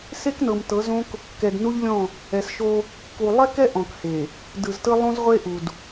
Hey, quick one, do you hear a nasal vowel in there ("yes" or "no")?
yes